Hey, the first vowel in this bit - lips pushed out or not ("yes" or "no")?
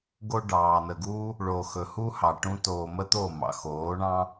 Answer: yes